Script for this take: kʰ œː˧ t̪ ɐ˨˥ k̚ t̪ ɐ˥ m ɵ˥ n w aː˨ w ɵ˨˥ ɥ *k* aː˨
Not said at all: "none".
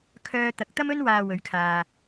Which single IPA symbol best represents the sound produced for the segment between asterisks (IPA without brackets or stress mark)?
kʰ